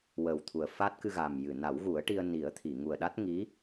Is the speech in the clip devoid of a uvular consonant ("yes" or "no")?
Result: yes